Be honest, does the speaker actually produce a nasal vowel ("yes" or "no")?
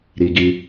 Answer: no